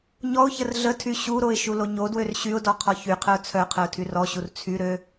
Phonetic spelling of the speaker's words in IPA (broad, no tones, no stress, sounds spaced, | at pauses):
ɲ ɔ ʊ̯ ç ə r ɮ ə tʰ y ɕ u ɾ o ɪ̯ ʃ u l o ɲ o d w ø r ɕ y ʊ̯ d ɔ qʰ ɔ ç y qʰ ə ʊ̯ t͡sʰ œ qʰ ə ʊ̯ tʰ y r ɔ ɕ u r t͡sʰ y ɾ ø